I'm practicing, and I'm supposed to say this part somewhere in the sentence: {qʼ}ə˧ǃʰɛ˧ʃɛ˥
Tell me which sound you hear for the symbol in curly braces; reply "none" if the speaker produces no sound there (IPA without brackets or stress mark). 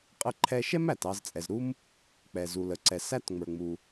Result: qʼ